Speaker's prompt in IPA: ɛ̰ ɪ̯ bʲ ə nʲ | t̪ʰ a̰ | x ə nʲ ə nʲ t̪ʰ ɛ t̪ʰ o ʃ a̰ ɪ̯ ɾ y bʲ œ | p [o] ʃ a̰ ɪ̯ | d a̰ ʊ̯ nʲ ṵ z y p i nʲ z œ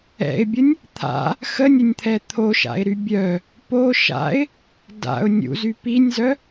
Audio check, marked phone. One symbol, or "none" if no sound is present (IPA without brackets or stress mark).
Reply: o